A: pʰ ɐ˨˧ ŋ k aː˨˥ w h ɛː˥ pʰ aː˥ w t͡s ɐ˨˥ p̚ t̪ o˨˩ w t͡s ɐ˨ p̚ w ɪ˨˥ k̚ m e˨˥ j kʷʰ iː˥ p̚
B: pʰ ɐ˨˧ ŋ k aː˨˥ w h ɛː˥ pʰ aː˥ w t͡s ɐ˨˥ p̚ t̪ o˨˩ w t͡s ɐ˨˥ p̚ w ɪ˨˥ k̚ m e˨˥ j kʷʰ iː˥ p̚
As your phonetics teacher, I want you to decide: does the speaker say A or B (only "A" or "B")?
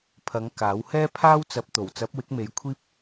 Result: B